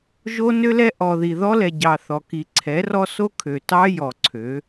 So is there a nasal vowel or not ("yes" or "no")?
no